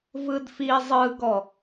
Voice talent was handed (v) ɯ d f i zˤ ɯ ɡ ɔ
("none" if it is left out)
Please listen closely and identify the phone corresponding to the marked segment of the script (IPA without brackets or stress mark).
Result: v